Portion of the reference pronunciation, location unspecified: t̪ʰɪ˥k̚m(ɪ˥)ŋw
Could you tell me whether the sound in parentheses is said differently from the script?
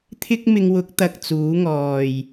yes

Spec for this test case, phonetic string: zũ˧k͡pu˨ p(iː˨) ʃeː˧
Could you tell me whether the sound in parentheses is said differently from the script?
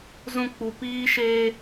yes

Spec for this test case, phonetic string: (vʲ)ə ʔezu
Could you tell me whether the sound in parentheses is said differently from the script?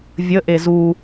no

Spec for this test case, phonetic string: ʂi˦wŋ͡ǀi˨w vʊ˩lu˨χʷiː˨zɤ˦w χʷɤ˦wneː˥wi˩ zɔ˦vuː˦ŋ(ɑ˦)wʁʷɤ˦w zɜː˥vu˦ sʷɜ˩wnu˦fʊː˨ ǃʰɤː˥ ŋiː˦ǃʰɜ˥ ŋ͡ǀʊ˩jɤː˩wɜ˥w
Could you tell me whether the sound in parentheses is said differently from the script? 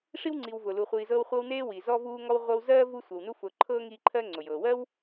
yes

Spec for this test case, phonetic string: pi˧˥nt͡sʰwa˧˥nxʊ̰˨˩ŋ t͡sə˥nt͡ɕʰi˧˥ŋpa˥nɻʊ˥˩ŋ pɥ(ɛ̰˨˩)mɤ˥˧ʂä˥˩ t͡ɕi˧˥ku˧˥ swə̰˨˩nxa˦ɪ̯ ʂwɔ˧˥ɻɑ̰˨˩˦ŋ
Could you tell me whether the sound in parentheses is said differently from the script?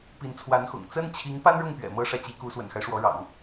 no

